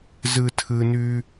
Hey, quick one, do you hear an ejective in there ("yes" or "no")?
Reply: no